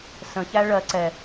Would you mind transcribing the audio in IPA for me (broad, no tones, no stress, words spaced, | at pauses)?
sə̃çæ ɭɜ ǀɛ